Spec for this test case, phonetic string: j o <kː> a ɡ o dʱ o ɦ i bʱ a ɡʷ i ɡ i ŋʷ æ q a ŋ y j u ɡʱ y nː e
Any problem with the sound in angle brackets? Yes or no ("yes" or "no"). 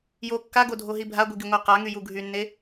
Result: no